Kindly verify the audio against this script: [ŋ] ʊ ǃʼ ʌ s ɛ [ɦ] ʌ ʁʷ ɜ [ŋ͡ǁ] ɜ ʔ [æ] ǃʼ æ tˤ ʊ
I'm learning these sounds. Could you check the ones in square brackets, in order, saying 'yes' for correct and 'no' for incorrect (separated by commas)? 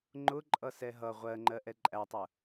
no, yes, no, no